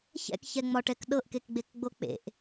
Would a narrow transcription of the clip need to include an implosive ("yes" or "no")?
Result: yes